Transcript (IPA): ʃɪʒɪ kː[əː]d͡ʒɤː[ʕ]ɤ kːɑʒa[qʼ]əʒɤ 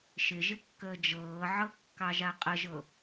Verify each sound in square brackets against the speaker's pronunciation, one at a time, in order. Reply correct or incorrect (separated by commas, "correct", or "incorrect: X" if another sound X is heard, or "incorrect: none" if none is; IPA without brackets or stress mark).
correct, correct, correct